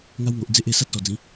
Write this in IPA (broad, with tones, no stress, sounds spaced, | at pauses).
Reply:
ŋ a˧ w ŋ o˨ ʔ d͡z e˦ ʔ e˧ s a˦ t̚ s ɔ˨˩ d͡z ĩ˨˦